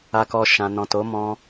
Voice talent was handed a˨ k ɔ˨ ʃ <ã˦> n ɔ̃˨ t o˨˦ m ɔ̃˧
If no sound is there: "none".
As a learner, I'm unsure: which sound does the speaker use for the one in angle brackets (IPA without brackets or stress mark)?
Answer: ã˨